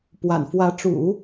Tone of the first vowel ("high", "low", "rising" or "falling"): low